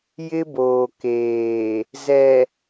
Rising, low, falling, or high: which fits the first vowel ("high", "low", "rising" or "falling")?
high